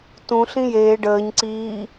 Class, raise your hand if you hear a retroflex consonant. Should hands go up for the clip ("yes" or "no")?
yes